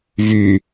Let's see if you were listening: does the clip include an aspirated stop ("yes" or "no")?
no